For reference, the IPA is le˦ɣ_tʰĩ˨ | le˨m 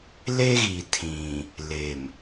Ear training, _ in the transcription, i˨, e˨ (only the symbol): i˨